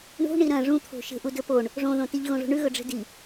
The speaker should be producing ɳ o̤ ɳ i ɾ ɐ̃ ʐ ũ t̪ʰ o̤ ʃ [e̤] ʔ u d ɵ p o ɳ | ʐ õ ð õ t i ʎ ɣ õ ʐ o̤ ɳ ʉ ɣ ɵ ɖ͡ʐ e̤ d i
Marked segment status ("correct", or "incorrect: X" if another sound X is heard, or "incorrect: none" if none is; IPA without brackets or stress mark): correct